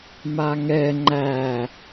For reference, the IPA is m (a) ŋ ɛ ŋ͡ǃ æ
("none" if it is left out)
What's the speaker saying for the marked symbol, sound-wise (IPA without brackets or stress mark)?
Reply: a